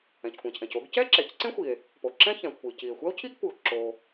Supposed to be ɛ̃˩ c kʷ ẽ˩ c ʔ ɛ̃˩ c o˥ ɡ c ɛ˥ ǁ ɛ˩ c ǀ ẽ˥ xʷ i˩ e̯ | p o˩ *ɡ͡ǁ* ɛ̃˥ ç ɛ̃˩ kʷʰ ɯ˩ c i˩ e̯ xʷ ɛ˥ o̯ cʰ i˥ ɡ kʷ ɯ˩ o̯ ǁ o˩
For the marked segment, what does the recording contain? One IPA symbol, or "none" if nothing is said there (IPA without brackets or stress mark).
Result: ǁ